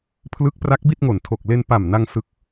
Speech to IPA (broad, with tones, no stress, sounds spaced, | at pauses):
pʰ l ɯ˦˥ k̚ p r a˦˥ k̚ b i˥˩ t̚ ŋ o˨˩ n tʰ o˨˩ k̚ l e˧ n p a˨˩ m n a˧ ŋ s ɯ˨˩ k̚